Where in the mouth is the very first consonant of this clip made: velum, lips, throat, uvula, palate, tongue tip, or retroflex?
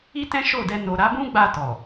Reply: tongue tip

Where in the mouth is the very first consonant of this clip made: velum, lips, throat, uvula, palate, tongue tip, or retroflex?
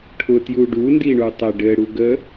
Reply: retroflex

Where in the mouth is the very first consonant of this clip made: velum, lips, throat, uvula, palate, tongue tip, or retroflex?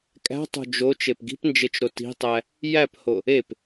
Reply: velum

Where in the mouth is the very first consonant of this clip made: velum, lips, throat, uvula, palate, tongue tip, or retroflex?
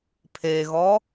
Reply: lips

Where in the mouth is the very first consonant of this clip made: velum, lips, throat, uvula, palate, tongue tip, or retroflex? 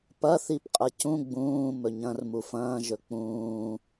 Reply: lips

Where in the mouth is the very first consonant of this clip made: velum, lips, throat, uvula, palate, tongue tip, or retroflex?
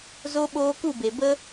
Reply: tongue tip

